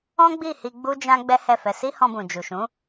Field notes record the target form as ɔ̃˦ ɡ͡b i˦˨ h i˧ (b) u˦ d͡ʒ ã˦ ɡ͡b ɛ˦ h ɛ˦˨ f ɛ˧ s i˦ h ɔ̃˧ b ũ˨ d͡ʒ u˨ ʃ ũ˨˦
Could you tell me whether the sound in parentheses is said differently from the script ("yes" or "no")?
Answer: yes